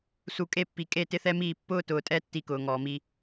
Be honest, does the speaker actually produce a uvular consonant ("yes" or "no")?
no